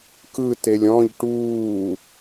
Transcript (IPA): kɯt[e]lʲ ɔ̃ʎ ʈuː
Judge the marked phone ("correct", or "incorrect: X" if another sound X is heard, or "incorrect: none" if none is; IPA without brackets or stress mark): correct